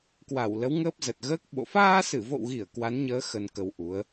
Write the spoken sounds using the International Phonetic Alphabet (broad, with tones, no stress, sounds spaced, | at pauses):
k w a˧˩ w l ə˨˦ w ŋ əː˦˥ p̚ z ə˨˩ t̚ ɣ əː˦˥ k̚ ɓ o̰˧˨ f aː˧ s ɨ˧˩ v o̰˧˨ w ɣ i˧˩ ə̯ k w a˨˦ n ɲ əː˨˦ x ə˧ n k ə˧ w ʔ u˨˦ ə̯